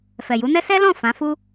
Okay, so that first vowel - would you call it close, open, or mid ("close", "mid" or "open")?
mid